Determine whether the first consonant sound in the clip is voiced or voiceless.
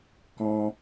voiceless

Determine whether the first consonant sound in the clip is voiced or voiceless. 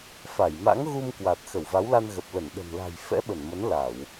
voiceless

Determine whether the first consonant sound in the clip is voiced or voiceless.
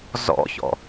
voiced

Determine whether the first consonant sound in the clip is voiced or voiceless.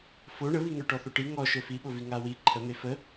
voiceless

